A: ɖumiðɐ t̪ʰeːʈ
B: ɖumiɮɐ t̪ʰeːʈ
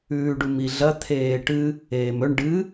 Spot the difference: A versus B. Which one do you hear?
B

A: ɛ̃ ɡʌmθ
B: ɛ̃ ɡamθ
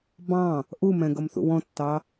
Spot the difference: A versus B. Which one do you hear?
A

